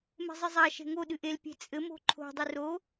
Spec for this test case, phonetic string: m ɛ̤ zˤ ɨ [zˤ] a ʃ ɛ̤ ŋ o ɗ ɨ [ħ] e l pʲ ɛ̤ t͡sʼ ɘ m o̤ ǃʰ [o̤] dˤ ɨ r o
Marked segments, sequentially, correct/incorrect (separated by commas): correct, incorrect, correct